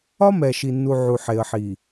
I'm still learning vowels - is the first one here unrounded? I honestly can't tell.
no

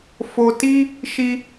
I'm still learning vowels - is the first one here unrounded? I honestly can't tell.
no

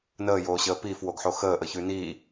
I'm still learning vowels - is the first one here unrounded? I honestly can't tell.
yes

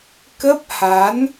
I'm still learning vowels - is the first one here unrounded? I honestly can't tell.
yes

